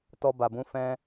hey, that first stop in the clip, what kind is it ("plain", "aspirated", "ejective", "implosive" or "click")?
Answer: plain